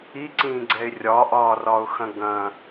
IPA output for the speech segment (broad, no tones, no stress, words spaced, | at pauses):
iǀĩːɡ͡ǀɛɪ̯ rʲɒʔɒːrɒʊ̯xɐ̃ ɡɐ̃